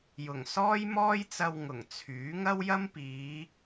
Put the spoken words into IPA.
j ʊ˨˩ ŋ s ɔː˥ j m ɔː˥ j t͡s ɐ˧ w ŋ ʊ˨˩ ŋ t͡sʰ yː˨˥ ŋ ɐ˥ w j ɐ˥ m p iː˨˧

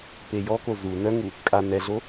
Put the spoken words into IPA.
p e j ɔ k o z u n œ ŋ u | kʼ a n ɛ ɮ o

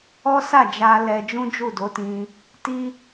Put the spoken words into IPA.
ɔ˦ s a˦˨ d͡ʒ a˧ l ɛ˧ d͡ʒ ũ˦ d͡ʒ u˦˨ d o˨˦ t ĩ˧ | t i˦

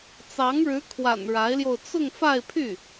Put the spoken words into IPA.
t͡s ɑ˧˥ ŋ ɻ ɻ̩˧˥ kʰ w a̰˨˩ n ɻ a˧˥ ɪ̯ l j o˧ ʊ̯ t͡s ʊ˥˧ ŋ f a˥˧ ɪ̯ pʰ y˥˩

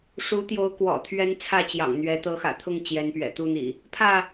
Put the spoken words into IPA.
ʂ u˨˦ t̪ j o˨˦ ʊ̯ k w ɔ̰˨˩ t̪ʰ ɥ ɛ˦ n t͡sʰ ä˥˨ t͡ɕ j ɑ̰˨˩ ŋ n̪ ɥ ɛ˨˦ t̪ ɤ˨˦ x ä̰˨˩ t̪ʰ ʊ˥˨ ŋ t͡ɕ j ɛ˨˦ n p ɥ ɛ̰˨˩ t̪ u˥˨ n̪ ḭ˨˩ | pʰ ä˥˨

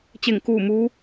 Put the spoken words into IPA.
t͡ɕ e˧˩ ŋ k uː˧˩ m uː˧˥

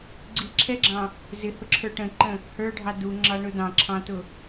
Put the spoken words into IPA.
ɡ͡ǀ i ǁʰ ɛ ɡ͡ǁ ɑ̃ | z ɪ h ʊ ǁʰ ə˞ ʈ ə̃ ǃ ə̃ | h ə˞ ɖʱ ɑ d u ŋ͡ǁ ɑ ɳ ʊ d ɑ̃ ǁʰ ɑ̃ t ʊ

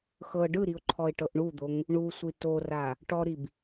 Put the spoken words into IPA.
x ɤ ɖ ɯ ɾ i ʊ̯ ǃʰ ɔ ɪ̯ ʈ ɤ ʔ ɳ u d̪ o ŋ | ɳ u sʷ i t o r a | ʈ ɔ ɾ i b

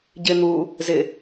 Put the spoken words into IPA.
ɟ ɪ n̪ u | z ɪ

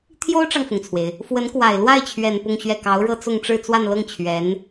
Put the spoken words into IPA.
t̪ʰ j o˥ ʊ̯ ʈ͡ʂ ɑ˨ ŋ f ʊ˩ ŋ t͡sʰ w e˩ ɪ̯ | f w ə˧˥ n k w a˨˩ ɪ̯ l w a˥˩ ɪ̯ t͡ɕʰ ɥ ɛ˨˩ n p ʊ˥˧ ŋ ɕ ɥ ɛ˥˩ k ɑ˧˥ ʊ̯ ɻ ɤ˥ t͡s ʊ˥˧ ŋ ʈ͡ʂ ɻ̩˥˧ t͡s w a˥˧ n l ɤ˥˩ ŋ t͡ɕʰ ɥ ɛ˧˥ n

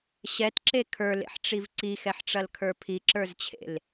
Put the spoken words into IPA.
ɕ ɛ t ǁ e kʰ ə˞ l ḛ ħ ʈ͡ʂ i v ǀ i x ɛ ħ ʈ͡ʂ ɐ l kʰ ə˞ pʰ i ǁ ə˞ z t͡ɕʰ ḛ l

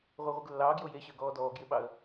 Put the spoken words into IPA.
ʁʷ ɪ ə̯ ʁʷ i ɡ lː ɑː ɡ j o j e ɕ əː ɡ ɔː d ɔː ɡ j ɪ ɓ ɑ ə̯

